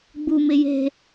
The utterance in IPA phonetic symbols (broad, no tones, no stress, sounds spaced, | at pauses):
ɡ͡b u m ɪ j e̤